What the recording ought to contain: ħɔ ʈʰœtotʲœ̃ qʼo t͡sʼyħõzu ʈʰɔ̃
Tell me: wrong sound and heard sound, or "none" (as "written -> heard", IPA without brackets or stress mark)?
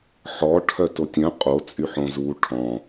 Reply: none